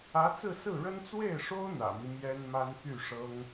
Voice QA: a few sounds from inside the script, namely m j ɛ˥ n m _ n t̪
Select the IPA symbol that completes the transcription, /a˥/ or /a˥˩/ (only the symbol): a˥